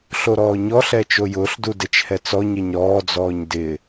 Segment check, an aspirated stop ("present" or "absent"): absent